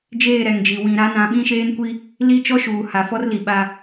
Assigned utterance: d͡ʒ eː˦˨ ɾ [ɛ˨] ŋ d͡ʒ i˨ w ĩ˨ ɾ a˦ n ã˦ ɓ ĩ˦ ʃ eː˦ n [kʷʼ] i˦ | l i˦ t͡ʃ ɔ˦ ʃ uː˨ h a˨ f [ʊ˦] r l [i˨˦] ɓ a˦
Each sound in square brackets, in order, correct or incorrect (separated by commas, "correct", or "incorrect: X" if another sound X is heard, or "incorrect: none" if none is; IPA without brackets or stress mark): correct, incorrect: kʷ, incorrect: ɔ˦, incorrect: i˨